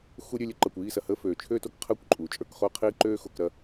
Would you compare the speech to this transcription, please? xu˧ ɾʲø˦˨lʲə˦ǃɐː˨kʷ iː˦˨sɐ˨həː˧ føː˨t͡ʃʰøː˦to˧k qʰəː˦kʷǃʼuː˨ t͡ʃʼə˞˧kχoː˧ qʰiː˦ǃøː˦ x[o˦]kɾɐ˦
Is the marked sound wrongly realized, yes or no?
yes